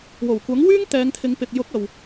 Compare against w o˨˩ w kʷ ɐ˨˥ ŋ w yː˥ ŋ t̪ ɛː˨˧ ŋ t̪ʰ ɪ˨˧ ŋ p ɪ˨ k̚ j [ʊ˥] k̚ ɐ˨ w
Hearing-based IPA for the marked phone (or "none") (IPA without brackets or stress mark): ʊ˨˥